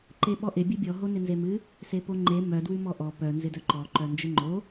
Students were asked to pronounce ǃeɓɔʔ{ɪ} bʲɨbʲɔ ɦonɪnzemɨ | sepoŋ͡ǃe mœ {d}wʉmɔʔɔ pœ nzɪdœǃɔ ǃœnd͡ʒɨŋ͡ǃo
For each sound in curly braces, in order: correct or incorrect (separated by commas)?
correct, correct